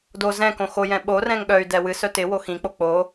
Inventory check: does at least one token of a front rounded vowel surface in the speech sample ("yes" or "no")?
yes